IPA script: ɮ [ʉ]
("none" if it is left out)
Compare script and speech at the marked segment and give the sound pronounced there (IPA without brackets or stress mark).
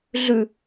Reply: ʉ